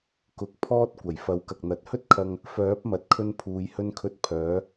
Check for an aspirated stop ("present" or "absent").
present